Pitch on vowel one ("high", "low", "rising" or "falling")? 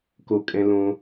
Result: high